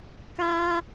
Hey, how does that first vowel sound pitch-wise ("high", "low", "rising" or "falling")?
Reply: high